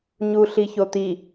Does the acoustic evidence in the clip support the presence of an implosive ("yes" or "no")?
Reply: no